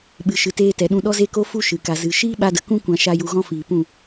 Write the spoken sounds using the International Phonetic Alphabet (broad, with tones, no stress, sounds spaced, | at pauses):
ɓ ɨ˨ ʃ ɨ˨ t eː˧ t ɛ˨ ɗ ũ˧ ɗ ɔ˦ z e˦ k o˦ f u˧ ʃ ɨ˨ k a˨ z ɨ˨ ʃ iː˦ ɓ a˧ d ə˨ k ũ˦ kʷ ã˧ ʃ a˧ j u˧ ɣ ɔ̃˦ f iː˨ p ũ˦˨